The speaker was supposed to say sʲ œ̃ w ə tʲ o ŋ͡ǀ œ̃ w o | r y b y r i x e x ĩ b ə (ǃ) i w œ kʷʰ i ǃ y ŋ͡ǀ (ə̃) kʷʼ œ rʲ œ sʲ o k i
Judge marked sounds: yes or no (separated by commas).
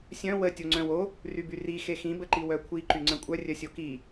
yes, yes